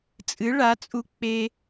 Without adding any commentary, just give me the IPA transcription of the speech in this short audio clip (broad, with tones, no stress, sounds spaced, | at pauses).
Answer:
t͡sʼ ɨ˨˥ ɭ a˨˥ t͡sʼ u˧ k͡p e˧